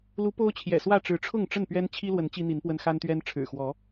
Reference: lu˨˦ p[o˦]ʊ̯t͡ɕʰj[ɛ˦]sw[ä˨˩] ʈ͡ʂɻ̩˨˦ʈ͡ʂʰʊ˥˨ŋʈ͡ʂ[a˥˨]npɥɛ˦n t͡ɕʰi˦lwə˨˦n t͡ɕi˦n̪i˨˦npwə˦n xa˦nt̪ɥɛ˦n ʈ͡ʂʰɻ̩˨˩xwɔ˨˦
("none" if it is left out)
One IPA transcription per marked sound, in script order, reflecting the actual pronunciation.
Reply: o˦, ɛ̰˨˩, ä˥˨, ə˥˨

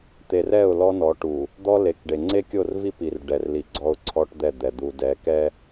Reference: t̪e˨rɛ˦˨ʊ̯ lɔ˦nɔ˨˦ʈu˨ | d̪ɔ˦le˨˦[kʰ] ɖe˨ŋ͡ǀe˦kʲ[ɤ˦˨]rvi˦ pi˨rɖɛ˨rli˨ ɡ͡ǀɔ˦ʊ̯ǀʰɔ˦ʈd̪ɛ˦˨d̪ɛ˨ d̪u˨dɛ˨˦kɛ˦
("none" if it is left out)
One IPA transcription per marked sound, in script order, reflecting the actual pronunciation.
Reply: k, o˦˨

